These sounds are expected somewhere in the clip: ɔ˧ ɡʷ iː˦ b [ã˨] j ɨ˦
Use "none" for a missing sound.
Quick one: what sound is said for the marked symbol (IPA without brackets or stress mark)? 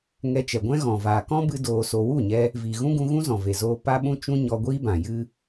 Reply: ã˨